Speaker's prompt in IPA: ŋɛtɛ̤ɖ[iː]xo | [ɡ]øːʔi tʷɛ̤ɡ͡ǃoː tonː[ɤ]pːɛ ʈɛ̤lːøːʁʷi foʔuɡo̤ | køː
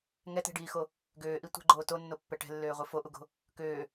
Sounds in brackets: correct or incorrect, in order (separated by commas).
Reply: correct, correct, incorrect